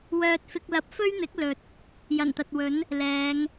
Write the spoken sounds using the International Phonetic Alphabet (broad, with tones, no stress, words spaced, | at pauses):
wœː˧t̚fɪ˧k̚lɐ˧p̚ fɵ˥ɥn̪ɪ˨˥k̚ lɵ˨t̚ | jɐ˨˩nt̪ɐ˨t̚wɵ˨˥n | lɛː˨˧ŋ